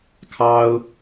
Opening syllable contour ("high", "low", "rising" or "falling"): high